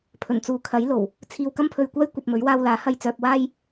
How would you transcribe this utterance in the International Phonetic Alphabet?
pʰ ɵ˨˩ n t͡s uː˨ kʰ ɐ˨˥ j l o˨˩ w | t͡sʰ iː˧ w k ɐ˥ m pʰ ɵ˧ ɥ kʷ aː˥ j kʷ ɐ˧ p̚ m ɵ˨˥ ɥ w aː˧ w l aː˨˥ h ɐ˧ j t͡s œː˧ p̚ w aː˥ j

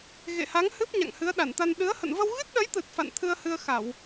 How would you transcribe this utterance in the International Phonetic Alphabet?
ɣ ḛ˧˨ h a˨˦ ŋ h ɨ˦˥ p̚ ɲ a̰˧˨ ŋ h ɨ˨˦ ə̯ ɗ a˧˩ n t̪ a˧ n ɗ ɨ˨˦ ə̯ h ə̰˧˨ n v ə˧ w ɣ ɨ˦˥ t̚ ɗ ə˨˦ j t̪ ɨ˨˩ t̚ f a̰˧˨ n t̪ʰ ɨ˧ ə̯ h ɨ˧ ə̯ x a˧˩˨ w

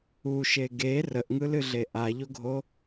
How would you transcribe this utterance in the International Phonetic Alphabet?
u ʃ e ɡ e r ə ʔ ŋ ɯ l ɨ ɮ e ʔ a ʎ o ɡʱ o

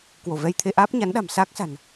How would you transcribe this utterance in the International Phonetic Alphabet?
k w o˧˩ v ɛ˧ j t̪ʰ e˧ ʔ aː˦˥ p̚ ɲ a˨˦ n ɗ a̤˨˩ m s aː˦˥ k̚ s a̤˨˩ n

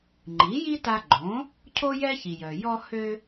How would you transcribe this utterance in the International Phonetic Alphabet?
ŋ͡ǃ i˩˥ j i˥ t a˧ ɡ͡ǃ õ˩˥ | cʰ o˥ j ɛ˥ ç i˩ j œ˩ j ɔ˧ h ø˧

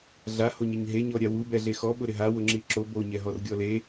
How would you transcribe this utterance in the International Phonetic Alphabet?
ɮ a h o ɲ ɪ ɲ ɦ e ɲ ɔ ɾʲ a w u b ɛ ɮ e x ɔ ɓ ʊ ɾ ɪ ɦ a w ʊ ŋ͡ǁ i ǁ o b o ɲ ɛ ɦ ɔ r ɡʲ ɔ l e

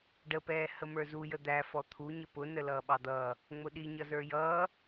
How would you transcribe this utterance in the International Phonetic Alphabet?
ɖ ə p ɛː h ə m ə˞ z u j ə d̪ æ f ɔ t̪ʰ u ɲ ə p ʊ n ə l ʌː ɓ ɑ d̪ ʌː | ŋ͡m ʊ ɗ i ɲ ʌ z ə˞ j ʌː

